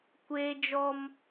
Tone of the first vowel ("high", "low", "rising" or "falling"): high